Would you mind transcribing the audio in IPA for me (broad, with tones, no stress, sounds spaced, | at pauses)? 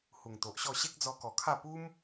h u˨˩ ŋ t̪ o˨ ʔ ɕ ɔ˥˧ ɕ e˦ k̚ d͡z ɔ˧ k ɔ˨˩ kʰ a˥˧ p u˦ m